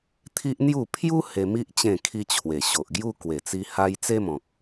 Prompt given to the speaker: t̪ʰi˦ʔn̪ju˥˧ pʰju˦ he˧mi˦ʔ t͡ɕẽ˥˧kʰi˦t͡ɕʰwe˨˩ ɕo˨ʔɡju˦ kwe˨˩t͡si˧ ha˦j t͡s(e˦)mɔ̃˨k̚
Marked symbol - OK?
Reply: yes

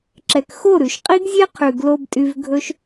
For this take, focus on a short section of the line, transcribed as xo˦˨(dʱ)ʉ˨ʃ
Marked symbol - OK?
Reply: no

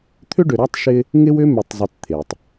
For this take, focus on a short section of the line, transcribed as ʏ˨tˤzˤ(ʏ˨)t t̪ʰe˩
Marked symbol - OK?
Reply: yes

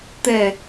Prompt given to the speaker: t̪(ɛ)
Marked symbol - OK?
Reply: yes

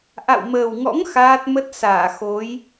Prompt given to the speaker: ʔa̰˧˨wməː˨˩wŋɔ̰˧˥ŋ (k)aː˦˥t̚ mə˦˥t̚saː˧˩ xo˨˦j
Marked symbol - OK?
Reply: no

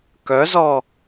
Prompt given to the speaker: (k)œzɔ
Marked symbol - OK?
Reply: yes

